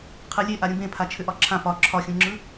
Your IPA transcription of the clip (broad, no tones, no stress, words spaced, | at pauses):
qʰɯlʲe ʔaɾʲũbẽpʰa t͡ʃʰʏʔɒǁʰã pɒ ǁʰɒxʲũŋ͡ǁɯ